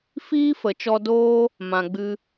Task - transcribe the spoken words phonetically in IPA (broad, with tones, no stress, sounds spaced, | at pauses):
f iː˦ f ə˨ t͡ʃ ɔ˧ d oː˦ | m ã˧ ɡ͡b ɨ˦